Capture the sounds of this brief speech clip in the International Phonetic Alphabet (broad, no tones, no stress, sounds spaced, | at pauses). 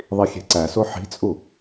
ðˤ i xʲ e̤ ǀ æ s o ħ i̤ t͡sʼ u